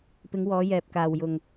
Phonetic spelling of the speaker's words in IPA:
p ɪ˨˧ ŋ w ɔː˨˧ j ɛː˨ p̚ k aː˨ w j ʊ˨ ŋ

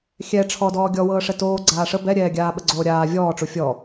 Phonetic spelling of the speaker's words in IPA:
xʲ ɛ ʈ͡ʂʰ ɔ d ɔː ɡʲ ɔ w ɤː ʂ ɛ t oː ɡ͡ǀ aː ʂ ə b ɛ ɾʲ ɛː ɡʲ aː ɓ ə ɡ͡ǀ oː ɾʲ aː vʲ ɔː ʈ͡ʂ u fʲ ɔ

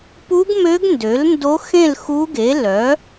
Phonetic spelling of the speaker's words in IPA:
p u˧˥ ɡ m ø˧˥ ɡ n d ø˩˥ l n d o˧˥ x ẽ˥˨ l x u˧˥ ɡ e˩˥ l œ˩˥

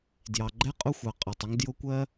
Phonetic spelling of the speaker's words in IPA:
d j ɑ˩ ɡ͡ǃ ɛ˦ qʼ ʊ˦ xʷ ɑ˩ qʼ ɑ˩ tˤ ɪ˦ ŋ d j ʊ˦ kʷ ɜ˦

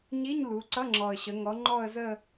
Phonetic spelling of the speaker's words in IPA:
ɲ i˧˥˧ ɲ l u˩˧ ǀ ʌ˧˥˧ ŋ͡ǁ ɔ˨˩ ə̯ ɕ ə˩˧ ŋ ɔ˩˧ ŋ͡ǃ ɔ˥˧ ə̯ z ə˥˧

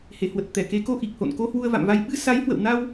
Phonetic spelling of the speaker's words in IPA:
h e˧˩ h w ə˨˩ t̚ t̪ ɛ˧˩ k e˨˦ k o˧ ʔ i˨˩ k̚ h o̰˧˨ n k o˧ h w u˧ ə̯ v a̰˧˨ m v a˧ j ɓ ɨ˧ s a˨˦ j h w ə̰˧˨ w n a˧ w

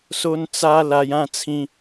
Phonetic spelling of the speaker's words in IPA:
s o˦ n t͡s a˦ l a˧ j ã˥˧ t͡sʰ ĩ˧

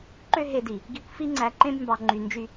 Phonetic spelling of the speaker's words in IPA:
ǃ ø˥ ɦ e˧ d i˩ | ɡ i˧ kʷ f i˥ ŋ͡ǀ æ˧ ǃ ẽ˥ b m b ɑ˧ ŋ͡ǃ y˧ n d͡ʒ y˥

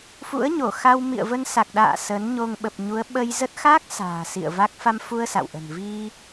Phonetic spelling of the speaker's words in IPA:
f ṵ˧˥ ə̯ ɲ o˧˩ x a˧ w m ḭ˧˨ ə̯ v ə˧ n s a˨˩ k̚ ɗ a̰ː˧˨ s ə˨˦ n ɲ o˧ ŋ ɓ ə˨˩ p̚ ɲ u˨˦ ə̯ ɓ ə˧ j z ə˦˥ t̚ x a˦˥ k̚ s a̤ː˨˩ s ḭ˧˨ ə̯ v a˦˥ k̚ f a˧ m f u˧ ə̯ s a̰˧˨ w ʔ ə̤˨˩ n v i˧

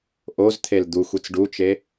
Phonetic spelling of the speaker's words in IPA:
ʔ o z t̪ʰ e l d̪ u xʷ i t͡s ɖ u t͡ʃ e

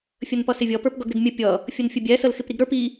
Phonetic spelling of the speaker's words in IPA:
fʲ ə n p ʌ s ɪ vʲ ʌ p ə˞ p ɡ ʌ ɡ ɾ ɪ ɡ mʲ ə pʲ ʌ | fʲ ə n fʲ ə bʲ ɛ s ə l x ɪ p ɾ i ɡ ɾ ə˞ p i

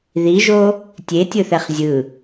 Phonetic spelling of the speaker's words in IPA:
ð i ʒ o | tʲ e tʲ ɯ θ ɛ χ zʲ ɯ

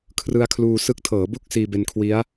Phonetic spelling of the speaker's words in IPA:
kʰ r ɯ˧ a̯ kʰ l uː˧ s ɯ˦˥ k̚ tʰ ɤː˩˦ b u˦˥ k̚ s iː˧ b e˧ n kʰ w i˦˥ a̯

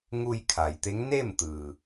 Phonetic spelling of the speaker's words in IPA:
ŋ u˧ j kʰ a˩ j t̪ e˧˥ ŋ n e˥˨ m t̪ ɯː˩

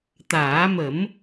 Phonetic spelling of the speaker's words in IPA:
t̪ aː˨˩˦ m ə˨˩˦ m

